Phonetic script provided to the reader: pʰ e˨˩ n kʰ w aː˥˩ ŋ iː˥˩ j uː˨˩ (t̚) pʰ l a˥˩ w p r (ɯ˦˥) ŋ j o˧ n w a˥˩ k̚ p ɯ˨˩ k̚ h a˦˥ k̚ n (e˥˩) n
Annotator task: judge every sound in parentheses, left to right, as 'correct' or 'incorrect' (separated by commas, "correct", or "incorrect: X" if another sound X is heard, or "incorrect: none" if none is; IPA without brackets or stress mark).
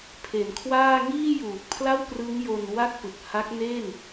incorrect: k̚, correct, correct